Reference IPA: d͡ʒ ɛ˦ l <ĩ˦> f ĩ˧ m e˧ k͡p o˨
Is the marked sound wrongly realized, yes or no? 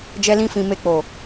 no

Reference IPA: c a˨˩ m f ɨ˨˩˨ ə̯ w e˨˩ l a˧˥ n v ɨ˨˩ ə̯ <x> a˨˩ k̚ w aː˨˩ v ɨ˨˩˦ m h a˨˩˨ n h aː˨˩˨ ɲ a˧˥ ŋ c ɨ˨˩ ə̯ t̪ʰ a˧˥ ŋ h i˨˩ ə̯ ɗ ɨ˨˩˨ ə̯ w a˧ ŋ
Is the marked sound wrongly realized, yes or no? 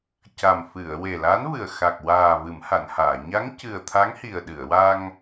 no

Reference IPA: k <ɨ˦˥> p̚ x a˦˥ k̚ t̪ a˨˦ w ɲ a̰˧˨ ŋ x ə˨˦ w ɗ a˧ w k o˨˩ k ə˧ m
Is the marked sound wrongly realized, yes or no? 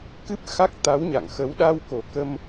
no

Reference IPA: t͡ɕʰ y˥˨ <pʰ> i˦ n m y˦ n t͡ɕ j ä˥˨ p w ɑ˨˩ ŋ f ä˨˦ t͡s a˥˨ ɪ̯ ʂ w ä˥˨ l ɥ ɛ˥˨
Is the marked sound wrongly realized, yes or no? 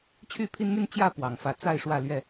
no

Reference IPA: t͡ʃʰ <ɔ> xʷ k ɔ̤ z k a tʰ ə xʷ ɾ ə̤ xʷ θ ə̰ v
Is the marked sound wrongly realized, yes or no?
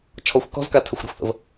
no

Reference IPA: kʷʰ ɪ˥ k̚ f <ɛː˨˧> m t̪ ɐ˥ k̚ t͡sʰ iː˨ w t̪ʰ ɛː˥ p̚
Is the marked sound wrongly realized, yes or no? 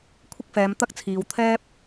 no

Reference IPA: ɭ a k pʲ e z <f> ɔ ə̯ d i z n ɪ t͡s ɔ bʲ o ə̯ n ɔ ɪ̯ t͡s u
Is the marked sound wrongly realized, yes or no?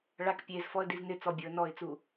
no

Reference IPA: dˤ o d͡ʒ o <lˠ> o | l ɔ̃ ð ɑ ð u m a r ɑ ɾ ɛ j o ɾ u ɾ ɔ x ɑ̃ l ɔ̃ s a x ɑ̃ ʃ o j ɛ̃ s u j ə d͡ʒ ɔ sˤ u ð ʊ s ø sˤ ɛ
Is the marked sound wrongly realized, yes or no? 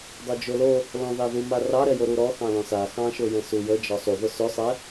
yes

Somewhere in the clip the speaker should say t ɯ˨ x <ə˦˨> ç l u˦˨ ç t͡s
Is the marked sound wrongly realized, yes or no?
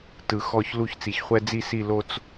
yes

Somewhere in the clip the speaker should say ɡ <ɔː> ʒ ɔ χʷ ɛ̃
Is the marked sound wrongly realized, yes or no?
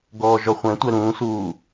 no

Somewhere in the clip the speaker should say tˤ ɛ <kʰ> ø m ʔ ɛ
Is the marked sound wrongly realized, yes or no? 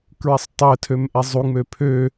yes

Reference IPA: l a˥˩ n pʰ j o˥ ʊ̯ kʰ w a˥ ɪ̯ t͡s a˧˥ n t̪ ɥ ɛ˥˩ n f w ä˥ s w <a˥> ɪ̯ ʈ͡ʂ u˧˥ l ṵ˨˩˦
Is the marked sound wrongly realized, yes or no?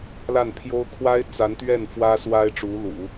no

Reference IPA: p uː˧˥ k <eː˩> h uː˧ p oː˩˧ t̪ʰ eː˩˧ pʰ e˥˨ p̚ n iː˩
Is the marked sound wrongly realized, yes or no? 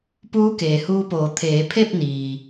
no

